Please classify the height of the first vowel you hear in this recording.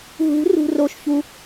high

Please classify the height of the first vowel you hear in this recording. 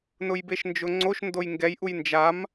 high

